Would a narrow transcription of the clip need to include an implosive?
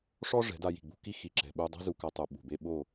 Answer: yes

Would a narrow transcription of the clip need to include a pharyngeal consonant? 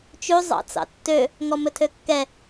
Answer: no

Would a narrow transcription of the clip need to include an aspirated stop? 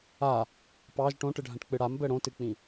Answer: no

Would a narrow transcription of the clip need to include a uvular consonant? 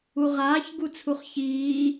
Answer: yes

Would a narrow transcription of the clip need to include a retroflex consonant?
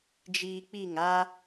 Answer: no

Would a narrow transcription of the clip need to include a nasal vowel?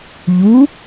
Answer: no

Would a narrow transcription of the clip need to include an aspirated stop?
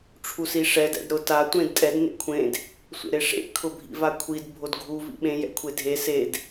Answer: yes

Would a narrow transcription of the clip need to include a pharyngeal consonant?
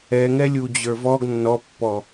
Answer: no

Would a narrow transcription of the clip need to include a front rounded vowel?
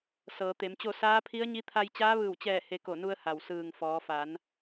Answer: no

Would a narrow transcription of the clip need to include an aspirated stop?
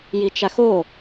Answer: no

